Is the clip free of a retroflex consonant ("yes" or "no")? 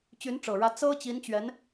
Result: no